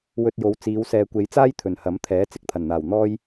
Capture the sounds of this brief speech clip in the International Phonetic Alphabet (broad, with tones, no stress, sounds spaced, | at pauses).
w ɵ˧ t̚ j o˨˧ w t͡s iː˨˧ w s ɛː˨ kʷ e˨˧ j t͡s aː˥ j t̪ʰ ɵ˨˩ n h ɐ˨˥ m t̪ʰ ɛː˨˥ t͡s ɪ˧ k̚ t̪ʰ ɐ˨˩ n n̪ aː˨˩ w n̪ ɔː˥ j